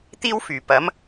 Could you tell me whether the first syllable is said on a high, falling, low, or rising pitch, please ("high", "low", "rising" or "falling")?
high